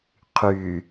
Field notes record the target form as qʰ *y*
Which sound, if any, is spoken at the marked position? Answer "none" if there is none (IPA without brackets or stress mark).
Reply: y